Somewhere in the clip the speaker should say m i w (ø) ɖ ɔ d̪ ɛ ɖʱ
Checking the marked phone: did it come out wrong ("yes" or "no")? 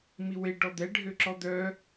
yes